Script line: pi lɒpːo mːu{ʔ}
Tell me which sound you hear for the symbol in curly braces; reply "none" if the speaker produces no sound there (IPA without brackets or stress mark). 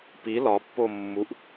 ʔ